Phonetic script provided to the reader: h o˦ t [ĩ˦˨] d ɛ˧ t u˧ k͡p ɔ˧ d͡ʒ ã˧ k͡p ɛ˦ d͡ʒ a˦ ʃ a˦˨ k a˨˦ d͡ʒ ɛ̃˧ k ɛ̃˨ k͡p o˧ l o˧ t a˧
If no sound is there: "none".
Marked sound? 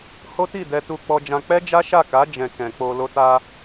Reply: i˦˨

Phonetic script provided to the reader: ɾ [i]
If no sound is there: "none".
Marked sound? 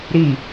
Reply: i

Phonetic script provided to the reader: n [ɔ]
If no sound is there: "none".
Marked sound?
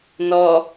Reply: ɔ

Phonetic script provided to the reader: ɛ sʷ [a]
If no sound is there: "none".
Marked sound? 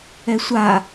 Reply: a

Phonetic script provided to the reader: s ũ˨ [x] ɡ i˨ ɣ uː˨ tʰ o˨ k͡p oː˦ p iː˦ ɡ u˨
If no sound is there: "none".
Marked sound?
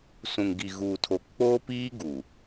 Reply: ŋ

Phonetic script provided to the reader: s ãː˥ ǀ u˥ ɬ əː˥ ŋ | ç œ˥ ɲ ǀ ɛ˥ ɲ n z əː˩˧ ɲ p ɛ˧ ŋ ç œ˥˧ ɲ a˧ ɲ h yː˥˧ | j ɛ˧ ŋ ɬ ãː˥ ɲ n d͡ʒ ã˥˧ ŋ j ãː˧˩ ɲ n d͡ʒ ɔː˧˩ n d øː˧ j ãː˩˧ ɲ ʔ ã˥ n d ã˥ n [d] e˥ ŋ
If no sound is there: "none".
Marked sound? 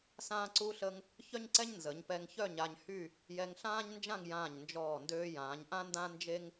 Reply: d͡ʒ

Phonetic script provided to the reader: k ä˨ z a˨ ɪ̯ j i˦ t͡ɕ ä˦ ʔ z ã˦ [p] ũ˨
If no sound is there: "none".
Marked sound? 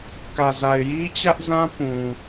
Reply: p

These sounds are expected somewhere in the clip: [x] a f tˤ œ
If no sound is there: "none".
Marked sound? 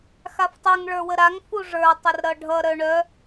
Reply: x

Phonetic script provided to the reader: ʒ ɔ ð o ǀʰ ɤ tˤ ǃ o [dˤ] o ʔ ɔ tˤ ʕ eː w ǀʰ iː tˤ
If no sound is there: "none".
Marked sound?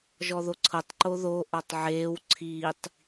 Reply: ð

